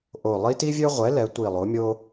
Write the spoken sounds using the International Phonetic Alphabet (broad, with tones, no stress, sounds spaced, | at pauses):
ʔ o˧˩ lˠ i˥ t i˥ vʲ ø˥ ʁʷ ɛ˩˥ l ɛ˩˥ tʷ i˧˩ lˠ o˩˥ mʲ o˥